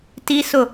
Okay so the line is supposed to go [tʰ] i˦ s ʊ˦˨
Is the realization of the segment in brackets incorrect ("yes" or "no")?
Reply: yes